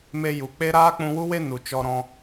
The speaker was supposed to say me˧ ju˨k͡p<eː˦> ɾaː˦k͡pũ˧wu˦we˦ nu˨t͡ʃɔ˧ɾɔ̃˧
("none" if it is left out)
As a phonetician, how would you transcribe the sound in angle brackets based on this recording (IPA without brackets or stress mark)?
e˦